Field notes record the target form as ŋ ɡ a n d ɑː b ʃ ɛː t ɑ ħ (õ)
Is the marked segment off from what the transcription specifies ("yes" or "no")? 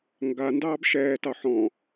yes